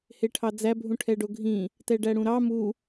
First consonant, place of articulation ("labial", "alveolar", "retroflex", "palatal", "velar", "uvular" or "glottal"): glottal